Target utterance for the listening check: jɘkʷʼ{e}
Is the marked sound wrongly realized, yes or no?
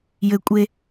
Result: no